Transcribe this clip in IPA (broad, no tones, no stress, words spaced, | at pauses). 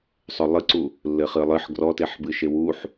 sˤʏlˠɨǀu | lːɘχɨlˠɨħ ɡrɔteħbɨʃe wuħ